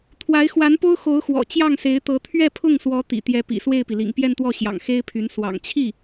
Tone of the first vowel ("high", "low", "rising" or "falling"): rising